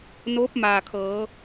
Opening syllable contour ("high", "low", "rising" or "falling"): rising